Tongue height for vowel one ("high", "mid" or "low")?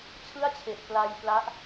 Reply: high